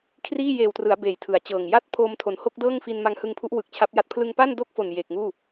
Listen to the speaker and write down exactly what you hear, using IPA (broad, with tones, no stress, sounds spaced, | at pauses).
kʰ r iː˥˩ j eː˨˩ w t r ɯ˩˦ a̯ b eː˨˩ j tʰ ɯ˩˦ a̯ t͡ɕ ɤː˨˩ ŋ j a˥˩ t̚ pʰ oː˧ m tʰ o˩˦ n h o˥˩ k̚ d ɤː˥˩ ŋ f i˧ n m a˦˥ ŋ h ɯ˧ ŋ pʰ u˦˥ ʔ w ɯ˨˩ k̚ t͡ɕʰ a˦˥ p̚ j a˦˥ t̚ pʰ l ɯ˧ ŋ p a˥˩ n d o˥˩ k̚ f o˨˩ n j eː˨˩ k̚ ŋ uː˥˩